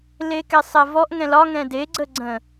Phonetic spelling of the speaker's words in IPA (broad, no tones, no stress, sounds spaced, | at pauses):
l e k ɛ sˤ ɛ v ɔ ʔ ŋ ɛ̃ l ɒ ŋ ɛ̃ d e ɡ͡ǀ ə ɡ͡ǀ ə̃